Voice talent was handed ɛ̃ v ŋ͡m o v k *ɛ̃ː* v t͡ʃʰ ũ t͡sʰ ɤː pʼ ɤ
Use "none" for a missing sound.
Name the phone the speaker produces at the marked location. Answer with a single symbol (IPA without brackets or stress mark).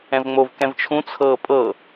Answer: ɛ̃